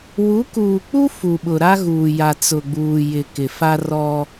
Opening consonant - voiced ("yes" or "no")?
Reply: yes